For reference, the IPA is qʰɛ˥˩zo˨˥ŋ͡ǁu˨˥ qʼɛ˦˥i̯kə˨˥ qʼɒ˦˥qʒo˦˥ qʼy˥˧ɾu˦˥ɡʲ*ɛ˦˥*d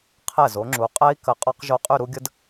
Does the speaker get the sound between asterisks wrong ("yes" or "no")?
yes